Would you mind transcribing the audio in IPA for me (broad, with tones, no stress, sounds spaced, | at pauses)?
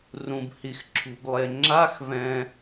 r ũ˨ b h i˨ x ǁʰ ṳ˨ b lˠ e˨ ŋ͡ǁ a˧˥˧ x v ɛ̃˨